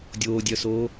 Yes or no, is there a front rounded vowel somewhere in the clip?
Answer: yes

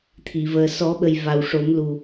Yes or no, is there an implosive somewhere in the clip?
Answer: yes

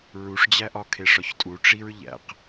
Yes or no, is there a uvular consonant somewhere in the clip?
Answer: yes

